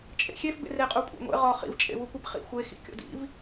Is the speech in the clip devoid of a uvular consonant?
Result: no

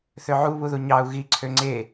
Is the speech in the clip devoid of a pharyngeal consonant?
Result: no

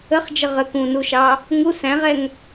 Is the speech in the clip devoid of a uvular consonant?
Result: no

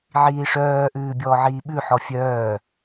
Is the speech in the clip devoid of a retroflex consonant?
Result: no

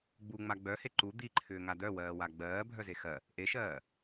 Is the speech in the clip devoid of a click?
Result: no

